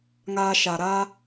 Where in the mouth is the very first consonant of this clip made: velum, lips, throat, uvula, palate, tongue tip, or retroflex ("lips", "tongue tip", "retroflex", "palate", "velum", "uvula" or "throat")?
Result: velum